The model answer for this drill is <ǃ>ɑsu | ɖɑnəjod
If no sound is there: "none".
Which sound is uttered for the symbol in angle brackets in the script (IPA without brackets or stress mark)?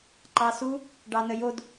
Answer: ǃ